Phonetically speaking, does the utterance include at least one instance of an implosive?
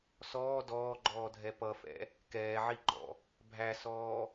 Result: no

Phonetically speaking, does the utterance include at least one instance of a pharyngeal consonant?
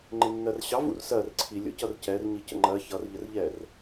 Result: no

